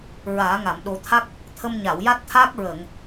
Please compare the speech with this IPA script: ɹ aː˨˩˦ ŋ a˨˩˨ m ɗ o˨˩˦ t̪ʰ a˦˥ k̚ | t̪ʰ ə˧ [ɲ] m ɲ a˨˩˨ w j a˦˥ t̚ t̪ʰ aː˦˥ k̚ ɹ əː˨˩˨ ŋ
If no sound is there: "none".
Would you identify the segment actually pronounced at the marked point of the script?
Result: none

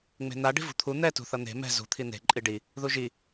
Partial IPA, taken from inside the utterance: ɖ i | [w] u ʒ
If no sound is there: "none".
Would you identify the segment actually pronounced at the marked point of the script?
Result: ð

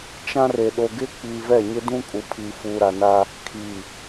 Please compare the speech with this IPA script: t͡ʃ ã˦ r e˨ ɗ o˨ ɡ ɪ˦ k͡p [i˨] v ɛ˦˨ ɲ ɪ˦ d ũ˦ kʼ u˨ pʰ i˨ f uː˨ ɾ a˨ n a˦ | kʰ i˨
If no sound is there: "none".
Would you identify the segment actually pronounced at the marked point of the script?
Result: i˨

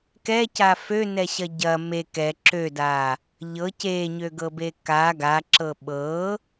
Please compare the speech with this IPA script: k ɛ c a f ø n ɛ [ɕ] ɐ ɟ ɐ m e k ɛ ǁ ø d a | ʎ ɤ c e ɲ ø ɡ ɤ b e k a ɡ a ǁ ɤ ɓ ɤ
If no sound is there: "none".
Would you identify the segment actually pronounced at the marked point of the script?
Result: ɕ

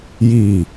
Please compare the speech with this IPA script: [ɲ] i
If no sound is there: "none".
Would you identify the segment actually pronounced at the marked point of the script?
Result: j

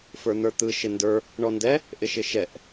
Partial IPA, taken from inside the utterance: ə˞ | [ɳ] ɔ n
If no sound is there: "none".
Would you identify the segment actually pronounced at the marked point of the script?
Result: ɳ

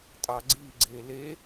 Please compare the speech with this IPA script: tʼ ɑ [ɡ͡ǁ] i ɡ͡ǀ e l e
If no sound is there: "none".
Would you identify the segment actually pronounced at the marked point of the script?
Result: ɡ͡ǀ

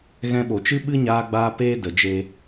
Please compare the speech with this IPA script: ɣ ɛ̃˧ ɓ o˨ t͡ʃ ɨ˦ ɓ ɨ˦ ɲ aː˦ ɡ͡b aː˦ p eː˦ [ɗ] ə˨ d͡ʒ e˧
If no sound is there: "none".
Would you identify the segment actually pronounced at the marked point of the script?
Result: d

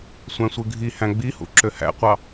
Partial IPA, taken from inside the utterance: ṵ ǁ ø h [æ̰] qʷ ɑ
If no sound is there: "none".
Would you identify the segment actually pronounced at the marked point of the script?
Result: æ̰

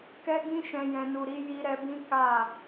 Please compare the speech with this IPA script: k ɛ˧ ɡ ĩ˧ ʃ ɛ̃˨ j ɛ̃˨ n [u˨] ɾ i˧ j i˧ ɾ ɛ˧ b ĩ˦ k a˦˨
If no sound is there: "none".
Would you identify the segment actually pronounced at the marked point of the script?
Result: u˨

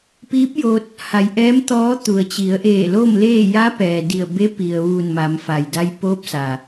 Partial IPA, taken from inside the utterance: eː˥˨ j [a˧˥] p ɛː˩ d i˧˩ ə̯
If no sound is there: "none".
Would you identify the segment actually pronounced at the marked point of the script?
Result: a˧˥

